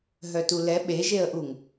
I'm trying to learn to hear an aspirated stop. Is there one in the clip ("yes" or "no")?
no